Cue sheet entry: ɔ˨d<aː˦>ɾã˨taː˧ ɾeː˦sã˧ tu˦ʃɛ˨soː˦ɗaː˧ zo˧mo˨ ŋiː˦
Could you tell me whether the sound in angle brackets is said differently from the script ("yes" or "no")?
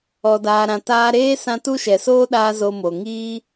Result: yes